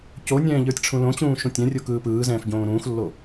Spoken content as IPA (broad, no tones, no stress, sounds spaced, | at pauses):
c o nʲ ɛ̃ː ʎ ə˞ tʲ ʈ͡ʂʰ ũ l õ t͡ɕ ũː ʃ ũ tʲ ɛ̃ rʲ o k ɯː p ɯː z ɛ̃ː f ɟ õː ɾ ũː x lː o